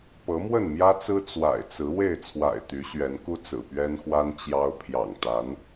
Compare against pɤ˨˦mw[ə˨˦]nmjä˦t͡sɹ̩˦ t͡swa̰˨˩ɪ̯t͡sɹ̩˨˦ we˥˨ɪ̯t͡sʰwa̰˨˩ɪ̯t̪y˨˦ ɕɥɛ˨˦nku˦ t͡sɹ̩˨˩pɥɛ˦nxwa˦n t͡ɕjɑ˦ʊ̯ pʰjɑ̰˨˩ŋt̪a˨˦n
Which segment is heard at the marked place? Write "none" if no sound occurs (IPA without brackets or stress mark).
ə˥˨